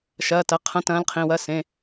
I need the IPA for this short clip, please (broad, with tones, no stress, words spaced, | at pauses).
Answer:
ʃɐː˩˧˩tɐ˩˧˩ qʰɐ̃˧˥˧tɐ̃ː˧˥lqʰĩ˩˧˩wɐ˧˥˧ sẽ˩˧˩